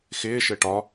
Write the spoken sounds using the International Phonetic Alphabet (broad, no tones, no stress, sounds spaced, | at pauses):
x ɪː ʃ ɘ ʈ ɒ